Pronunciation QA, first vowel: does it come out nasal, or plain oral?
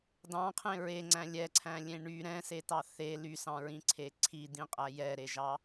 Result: nasal